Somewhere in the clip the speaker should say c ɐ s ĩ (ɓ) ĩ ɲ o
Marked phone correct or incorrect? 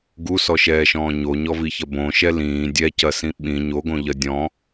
correct